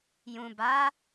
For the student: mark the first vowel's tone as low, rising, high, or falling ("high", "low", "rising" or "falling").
low